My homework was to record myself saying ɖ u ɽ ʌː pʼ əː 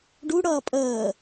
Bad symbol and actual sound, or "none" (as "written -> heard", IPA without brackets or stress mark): none